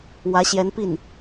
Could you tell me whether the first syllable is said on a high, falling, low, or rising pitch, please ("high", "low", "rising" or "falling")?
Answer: rising